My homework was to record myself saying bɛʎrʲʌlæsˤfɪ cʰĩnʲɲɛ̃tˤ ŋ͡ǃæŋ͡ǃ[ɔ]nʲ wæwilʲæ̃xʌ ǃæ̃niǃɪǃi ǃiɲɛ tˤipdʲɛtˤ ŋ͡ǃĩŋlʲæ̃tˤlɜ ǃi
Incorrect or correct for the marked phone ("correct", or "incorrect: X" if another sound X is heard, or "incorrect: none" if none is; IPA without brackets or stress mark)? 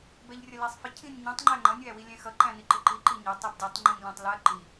incorrect: ʌ